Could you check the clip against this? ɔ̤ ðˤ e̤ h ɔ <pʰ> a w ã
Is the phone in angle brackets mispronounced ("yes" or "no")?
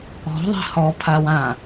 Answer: no